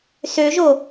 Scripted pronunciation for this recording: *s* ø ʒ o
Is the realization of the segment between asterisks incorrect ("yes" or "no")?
no